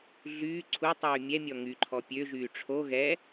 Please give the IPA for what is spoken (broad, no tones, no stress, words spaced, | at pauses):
ɮyː ǀʰutˤyː mʲɛmʲɔ ŋyǃʰɔ pʲøʒyː ʈ͡ʂʰo ɣɛ